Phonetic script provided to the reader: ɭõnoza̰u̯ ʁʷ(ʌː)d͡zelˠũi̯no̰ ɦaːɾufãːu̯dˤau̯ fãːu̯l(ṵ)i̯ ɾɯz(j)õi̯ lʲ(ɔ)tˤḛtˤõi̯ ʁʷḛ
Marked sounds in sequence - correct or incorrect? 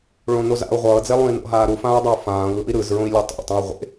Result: correct, incorrect, incorrect, incorrect

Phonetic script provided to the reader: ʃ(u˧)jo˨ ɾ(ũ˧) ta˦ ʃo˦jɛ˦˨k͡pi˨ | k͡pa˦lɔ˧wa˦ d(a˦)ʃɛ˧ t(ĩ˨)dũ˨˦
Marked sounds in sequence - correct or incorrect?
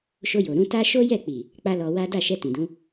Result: incorrect, correct, incorrect, correct

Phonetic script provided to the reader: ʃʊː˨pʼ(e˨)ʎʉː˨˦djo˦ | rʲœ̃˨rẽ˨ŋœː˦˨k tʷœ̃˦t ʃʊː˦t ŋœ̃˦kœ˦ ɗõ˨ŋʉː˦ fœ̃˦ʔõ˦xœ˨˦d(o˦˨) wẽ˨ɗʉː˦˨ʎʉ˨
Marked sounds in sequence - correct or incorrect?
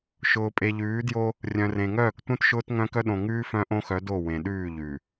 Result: correct, correct

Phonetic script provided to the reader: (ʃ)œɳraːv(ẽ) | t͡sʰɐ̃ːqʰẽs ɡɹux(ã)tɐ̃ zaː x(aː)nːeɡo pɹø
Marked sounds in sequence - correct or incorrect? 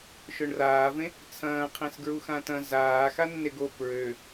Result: correct, correct, correct, incorrect

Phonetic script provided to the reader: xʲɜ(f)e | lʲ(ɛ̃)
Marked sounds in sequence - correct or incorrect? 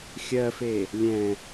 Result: correct, correct

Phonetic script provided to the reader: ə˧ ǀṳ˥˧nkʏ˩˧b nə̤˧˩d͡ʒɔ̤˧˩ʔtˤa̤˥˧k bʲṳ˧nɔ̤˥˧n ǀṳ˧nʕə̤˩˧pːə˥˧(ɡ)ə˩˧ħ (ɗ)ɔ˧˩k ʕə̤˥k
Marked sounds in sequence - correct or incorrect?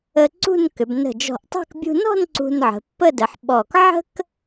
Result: incorrect, incorrect

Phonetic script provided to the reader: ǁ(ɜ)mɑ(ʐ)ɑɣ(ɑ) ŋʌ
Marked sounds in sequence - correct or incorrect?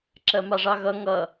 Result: correct, correct, incorrect

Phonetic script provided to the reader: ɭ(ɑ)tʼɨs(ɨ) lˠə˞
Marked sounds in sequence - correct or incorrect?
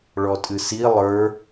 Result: incorrect, incorrect

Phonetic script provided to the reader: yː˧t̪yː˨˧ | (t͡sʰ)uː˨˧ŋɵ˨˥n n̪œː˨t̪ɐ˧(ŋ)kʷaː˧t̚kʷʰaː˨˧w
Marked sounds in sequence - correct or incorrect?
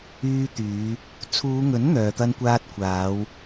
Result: correct, incorrect

